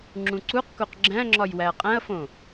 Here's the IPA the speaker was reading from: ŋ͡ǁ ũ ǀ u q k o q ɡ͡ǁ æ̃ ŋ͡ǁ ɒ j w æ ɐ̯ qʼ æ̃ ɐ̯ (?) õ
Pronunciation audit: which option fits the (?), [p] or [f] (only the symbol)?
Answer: f